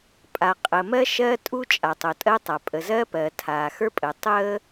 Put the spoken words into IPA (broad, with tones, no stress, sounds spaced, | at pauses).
pʼ a˩ qʼ ə˩ m ɜ˥ ʃ ɜ˥ tʼ u˥ t͡ʃʼ a˩ tˤ o˩ tʼ ɜ˥ tˤ a˩ pʼ ə˩ z ɜ˥ p ɜ˩ tʰ aː˩ x ə˞˥ pʼ əː˩ tˤ əː˥